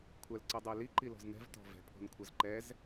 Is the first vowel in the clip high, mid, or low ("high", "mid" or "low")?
low